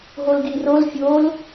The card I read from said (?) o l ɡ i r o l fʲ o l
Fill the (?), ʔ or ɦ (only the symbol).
ɦ